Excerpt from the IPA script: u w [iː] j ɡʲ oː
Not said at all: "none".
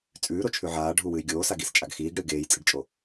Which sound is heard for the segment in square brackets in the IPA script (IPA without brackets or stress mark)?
ɨː